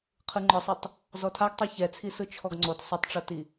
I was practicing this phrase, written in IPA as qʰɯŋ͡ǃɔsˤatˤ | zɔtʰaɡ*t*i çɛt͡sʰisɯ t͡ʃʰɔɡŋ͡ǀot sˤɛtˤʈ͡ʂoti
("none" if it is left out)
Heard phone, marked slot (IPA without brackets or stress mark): tˤ